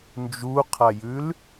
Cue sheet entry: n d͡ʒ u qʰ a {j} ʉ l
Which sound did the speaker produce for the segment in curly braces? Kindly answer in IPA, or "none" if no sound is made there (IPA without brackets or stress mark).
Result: j